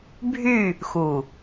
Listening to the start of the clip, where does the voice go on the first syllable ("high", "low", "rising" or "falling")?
falling